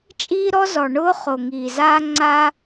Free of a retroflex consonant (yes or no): no